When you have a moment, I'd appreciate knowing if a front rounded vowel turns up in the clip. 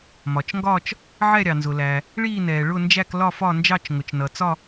no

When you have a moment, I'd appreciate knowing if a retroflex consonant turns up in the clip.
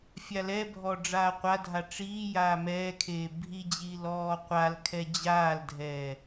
yes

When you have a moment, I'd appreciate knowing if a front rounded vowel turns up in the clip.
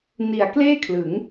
no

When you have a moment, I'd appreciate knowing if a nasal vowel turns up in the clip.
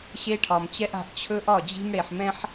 yes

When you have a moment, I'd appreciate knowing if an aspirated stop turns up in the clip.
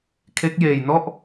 yes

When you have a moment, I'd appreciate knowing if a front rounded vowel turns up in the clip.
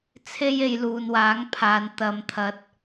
no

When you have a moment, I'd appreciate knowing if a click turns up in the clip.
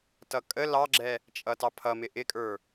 yes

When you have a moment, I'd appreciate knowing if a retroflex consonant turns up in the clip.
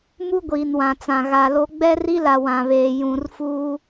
no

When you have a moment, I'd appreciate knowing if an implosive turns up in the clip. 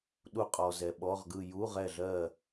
yes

